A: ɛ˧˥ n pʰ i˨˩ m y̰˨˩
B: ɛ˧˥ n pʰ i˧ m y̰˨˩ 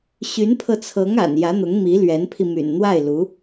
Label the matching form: B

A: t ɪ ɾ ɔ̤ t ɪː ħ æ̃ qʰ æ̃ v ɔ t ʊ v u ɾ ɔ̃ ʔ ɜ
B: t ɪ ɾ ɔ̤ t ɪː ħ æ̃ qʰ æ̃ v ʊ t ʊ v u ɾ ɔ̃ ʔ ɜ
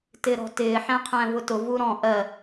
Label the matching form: B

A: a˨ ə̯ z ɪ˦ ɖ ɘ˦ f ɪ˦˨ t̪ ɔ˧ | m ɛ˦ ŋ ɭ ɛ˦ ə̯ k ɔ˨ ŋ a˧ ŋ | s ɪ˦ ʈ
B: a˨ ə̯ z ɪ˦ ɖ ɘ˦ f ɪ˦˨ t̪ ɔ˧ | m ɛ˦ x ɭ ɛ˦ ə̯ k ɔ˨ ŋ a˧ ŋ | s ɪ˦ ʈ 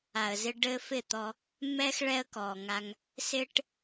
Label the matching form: B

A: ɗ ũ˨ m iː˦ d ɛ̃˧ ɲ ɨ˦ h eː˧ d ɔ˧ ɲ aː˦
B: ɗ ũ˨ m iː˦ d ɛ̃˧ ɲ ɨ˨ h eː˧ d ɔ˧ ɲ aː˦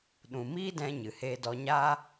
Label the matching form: B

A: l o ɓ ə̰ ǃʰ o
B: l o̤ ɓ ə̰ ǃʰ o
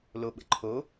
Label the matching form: A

